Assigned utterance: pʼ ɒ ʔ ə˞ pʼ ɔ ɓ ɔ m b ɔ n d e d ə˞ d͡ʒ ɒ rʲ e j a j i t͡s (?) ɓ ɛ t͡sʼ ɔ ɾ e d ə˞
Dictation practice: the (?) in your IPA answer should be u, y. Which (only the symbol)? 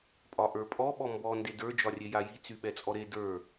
y